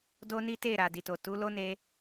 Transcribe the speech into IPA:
do˦ni˦te˦˨ ɾa˨di˨to˨ tu˨˦ lo˦ne˧

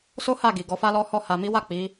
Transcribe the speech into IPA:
so˦ha˦˨ ɡi˨ɡɔ˨˦fa˦lɔ˦ hɔ˦˨ ha˨mi˨˦wa˦˨ k͡pi˨˦

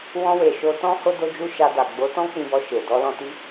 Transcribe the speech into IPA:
wɔ̃˧we˨ ʃo˧tɔ̃˦ ho˦do˦d͡ʒu˦ ʃa˧da˨ ɡ͡bo˨˦tɔ̃˦ k͡pĩ˧bɔ˧ʃe˨ dɔ˧lɔ̃˧ ti˦

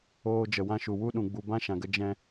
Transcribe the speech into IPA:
oː˦d͡ʒə˧wã˦ʃu˧ wu˦ɗũ˧ɡ͡bu˧ bã˦ ʃã˧ɡə˦ d͡ʒɛ̃˦

